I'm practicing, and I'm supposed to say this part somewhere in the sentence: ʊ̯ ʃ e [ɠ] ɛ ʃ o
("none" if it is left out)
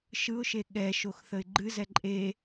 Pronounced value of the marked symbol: ɠ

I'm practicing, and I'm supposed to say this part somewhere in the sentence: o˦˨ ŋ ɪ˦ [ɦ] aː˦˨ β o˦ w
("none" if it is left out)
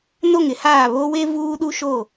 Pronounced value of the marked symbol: h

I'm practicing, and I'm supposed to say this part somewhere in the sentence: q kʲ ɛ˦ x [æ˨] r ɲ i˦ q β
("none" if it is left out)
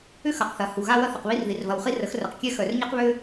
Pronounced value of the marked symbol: œ˨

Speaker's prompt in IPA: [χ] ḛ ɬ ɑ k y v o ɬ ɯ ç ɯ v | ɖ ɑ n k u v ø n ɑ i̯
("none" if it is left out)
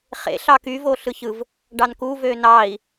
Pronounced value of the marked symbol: χ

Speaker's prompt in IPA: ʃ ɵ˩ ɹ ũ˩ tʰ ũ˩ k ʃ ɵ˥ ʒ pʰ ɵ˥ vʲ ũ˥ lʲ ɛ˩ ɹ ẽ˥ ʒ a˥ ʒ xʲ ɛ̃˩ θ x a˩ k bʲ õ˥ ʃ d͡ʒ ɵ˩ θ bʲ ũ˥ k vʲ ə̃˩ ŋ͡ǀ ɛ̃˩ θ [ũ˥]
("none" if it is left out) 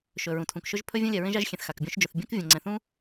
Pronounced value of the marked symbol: ũ˥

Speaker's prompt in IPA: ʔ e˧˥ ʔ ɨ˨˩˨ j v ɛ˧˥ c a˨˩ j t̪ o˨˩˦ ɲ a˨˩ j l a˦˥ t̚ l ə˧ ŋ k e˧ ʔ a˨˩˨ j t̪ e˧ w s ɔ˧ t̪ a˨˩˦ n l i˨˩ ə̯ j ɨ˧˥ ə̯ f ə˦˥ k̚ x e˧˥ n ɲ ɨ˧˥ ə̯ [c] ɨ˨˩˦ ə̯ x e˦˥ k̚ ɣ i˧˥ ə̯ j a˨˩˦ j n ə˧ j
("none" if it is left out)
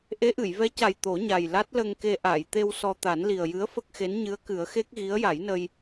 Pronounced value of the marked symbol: k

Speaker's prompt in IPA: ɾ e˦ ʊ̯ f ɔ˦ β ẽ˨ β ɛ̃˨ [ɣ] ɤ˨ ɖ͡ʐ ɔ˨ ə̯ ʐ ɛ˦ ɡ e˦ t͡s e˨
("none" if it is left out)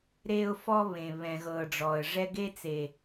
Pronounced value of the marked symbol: ɣ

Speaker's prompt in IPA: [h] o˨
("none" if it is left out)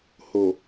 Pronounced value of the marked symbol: h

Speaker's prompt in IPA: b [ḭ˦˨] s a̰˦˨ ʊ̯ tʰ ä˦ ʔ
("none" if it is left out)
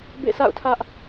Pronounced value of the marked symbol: ḛ˦˨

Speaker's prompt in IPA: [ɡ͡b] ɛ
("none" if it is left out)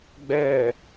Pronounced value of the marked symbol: ɡ͡b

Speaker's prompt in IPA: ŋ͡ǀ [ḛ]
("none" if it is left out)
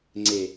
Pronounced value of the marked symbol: e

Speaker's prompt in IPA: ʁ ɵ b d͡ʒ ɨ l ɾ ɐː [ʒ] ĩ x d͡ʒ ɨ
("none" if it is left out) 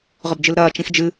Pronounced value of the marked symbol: t͡ʃ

